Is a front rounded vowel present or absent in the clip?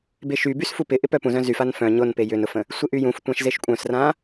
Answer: present